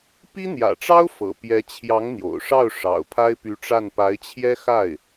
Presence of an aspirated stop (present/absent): present